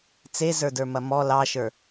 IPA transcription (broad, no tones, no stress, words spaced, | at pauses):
t͡sezə˞də˞mɐ mɔ lɑʃə˞